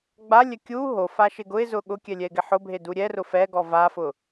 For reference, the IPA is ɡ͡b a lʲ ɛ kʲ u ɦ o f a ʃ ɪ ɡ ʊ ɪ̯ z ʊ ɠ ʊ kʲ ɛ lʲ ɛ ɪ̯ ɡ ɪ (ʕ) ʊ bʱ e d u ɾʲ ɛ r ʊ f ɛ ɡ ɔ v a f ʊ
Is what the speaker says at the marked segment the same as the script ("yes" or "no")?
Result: no